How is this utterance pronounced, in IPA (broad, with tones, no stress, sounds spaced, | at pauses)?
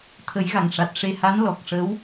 t̪ʰ ə˨˩˦ j ɣ a˨˩ ŋ ʂ a˨˩ t̚ ʂ e˧ h a˧˥ n l ɔ˨˩ k̚ ʂ ə˧˥ w